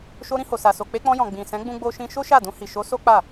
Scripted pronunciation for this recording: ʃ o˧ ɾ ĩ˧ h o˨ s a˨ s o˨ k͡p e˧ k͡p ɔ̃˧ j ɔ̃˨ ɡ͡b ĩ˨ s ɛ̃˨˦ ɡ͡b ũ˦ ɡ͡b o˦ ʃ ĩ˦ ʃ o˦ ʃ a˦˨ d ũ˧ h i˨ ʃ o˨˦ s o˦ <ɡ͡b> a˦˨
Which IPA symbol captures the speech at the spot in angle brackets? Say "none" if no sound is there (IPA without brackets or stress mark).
k͡p